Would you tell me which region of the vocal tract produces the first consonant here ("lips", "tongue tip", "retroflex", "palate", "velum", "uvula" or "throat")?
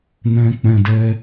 tongue tip